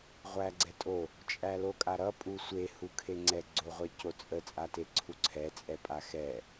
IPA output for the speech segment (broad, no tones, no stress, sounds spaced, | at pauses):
ʁʷ æ ɡ͡ǀ ɛ tʼ o | t͡ʃʼ æ l o kʼ a ɾ ʌ pʼ u sʷ e h u kʰ e ŋ͡ǀ ɛ ɡ͡ǀ o ʁʷ ɛ c o t͡sʼ ə t͡sʼ a t e ǀʰ u ǀʰ ɛ t͡sʼ ɛ pʼ a x ɛ